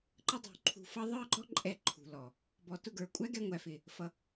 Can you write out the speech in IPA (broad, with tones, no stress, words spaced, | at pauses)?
ǃə˦dˤṳ˨ǃʰṳ˧fʌ˦ ðˤə˞˦ɡ͡ǃɔ˦ ǃʼɛ˧ ǃʰṳ˨lɔ˨ | bɔ˨tʊ˦˨ɡə˞˨ kʷʼæ˦ɡɛ˧ŋʷæ˨fɪ˨ | fʌ˨